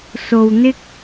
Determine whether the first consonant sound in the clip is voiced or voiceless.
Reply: voiceless